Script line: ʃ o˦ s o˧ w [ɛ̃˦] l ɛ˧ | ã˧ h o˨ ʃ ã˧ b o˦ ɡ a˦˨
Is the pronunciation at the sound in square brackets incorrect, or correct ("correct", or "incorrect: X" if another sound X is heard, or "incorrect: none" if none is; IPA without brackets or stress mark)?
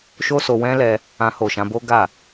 correct